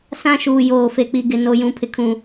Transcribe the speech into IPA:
s ã˦ ʃ uː˨ j oː˨ f e˨ k͡p i˨ ɡ ɪ˨ n o˨ j ũ˨ pʰ ɪ˨ kʰ ũ˨

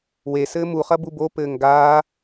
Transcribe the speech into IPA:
w e s ɘː m u χ ɐ b u b o p ɘː ŋ ɡ aː

